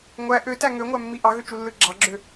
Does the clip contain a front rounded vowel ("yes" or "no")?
yes